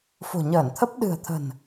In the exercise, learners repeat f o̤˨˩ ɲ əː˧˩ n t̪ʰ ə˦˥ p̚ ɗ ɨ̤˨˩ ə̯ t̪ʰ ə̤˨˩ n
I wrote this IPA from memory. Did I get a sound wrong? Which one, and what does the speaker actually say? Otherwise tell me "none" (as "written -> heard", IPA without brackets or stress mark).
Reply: none